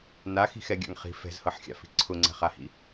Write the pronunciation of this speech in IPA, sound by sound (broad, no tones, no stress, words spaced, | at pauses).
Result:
naxi̤xɛɡʲa̰ŋ χi̤ fɛ̤zhɤħxʲa̰fi̤ ǀʰʊŋ͡ǀɛ̤χahḭ